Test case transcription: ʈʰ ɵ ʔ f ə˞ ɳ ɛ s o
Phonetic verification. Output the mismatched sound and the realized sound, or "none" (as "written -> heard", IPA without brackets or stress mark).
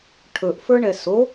none